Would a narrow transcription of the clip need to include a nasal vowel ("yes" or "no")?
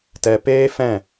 yes